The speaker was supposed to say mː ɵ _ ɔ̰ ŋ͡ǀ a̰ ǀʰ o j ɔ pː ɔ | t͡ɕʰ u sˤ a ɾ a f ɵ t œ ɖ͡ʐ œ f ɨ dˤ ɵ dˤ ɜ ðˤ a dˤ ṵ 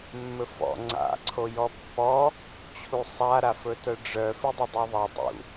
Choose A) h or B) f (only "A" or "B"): B